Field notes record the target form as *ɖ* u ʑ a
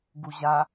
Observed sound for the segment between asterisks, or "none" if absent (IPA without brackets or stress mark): ɡ